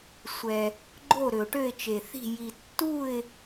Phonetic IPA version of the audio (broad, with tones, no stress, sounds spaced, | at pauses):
sʷ ɛ˨ | ɡ͡ǃ o˥˨ ɾ ø˨ ʊ̯ ʈ ø˥˨ ɪ̯ t͡ʃ e˨ θ i̤˥˨ j i˨ tː u˥˨ ɪ̯